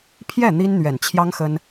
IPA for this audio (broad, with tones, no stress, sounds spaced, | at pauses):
pʰ j ɛ˥˩ n̪ i˥ n n̪ ɥ ɛ˨˩ n t͡ɕʰ j ɑ˥ ŋ x ə˥ n